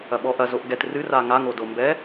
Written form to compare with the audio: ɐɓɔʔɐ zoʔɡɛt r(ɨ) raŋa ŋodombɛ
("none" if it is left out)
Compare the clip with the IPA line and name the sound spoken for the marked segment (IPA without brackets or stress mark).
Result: ɨ